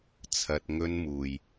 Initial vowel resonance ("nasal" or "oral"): oral